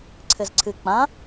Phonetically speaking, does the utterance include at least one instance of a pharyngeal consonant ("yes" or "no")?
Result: no